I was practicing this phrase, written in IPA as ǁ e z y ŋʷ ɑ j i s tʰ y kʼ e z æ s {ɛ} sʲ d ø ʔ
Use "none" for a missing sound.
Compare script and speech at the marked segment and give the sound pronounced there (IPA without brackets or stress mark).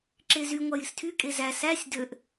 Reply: æ